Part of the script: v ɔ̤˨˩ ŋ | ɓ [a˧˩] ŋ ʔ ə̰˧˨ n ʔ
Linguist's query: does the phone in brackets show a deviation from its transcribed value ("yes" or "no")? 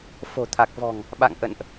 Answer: yes